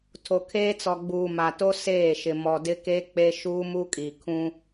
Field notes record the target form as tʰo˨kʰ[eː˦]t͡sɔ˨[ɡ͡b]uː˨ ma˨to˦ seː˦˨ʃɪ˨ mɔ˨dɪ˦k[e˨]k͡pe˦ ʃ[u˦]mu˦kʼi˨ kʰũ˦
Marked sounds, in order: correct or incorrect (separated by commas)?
correct, correct, incorrect, incorrect